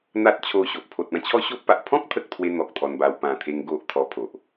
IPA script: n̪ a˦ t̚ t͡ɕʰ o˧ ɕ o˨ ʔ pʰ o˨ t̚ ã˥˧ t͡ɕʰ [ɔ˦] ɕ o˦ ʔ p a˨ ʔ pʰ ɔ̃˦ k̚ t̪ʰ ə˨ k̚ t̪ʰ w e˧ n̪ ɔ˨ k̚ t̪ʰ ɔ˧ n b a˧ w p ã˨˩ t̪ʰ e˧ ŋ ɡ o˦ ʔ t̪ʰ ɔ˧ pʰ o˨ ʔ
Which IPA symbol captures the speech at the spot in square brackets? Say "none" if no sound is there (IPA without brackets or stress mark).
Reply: ɔ˦